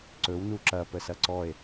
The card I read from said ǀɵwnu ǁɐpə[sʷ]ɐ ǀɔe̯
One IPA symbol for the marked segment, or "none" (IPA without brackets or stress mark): s